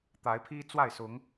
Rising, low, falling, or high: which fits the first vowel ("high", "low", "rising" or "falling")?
rising